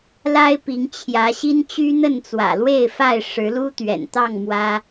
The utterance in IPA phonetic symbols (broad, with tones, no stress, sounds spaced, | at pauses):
l a˦ ɪ̯ p i˨˦ ŋ t͡ɕʰ j ä˨˦ ɕ i˦ n t͡ɕ y˦ n̪ ə˥˨ n t͡s w ä̰˨˩ l w e˥˨ ɪ̯ f a˥˨ ɪ̯ ʂ ɻ̩˨˦ l u˦ t̪ ɥ ɛ̰˨˩ n t̪ ɑ˥˨ ŋ m w ä˦